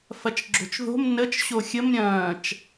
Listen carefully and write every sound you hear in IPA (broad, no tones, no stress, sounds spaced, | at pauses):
f ɐ t͡ʃ ɡ͡ǁ o̤ t͡ʃ ð o̤ m n ə t͡ʃ ɕ o xʲ ə m ɾʲ ɐ̃ː t͡ʃ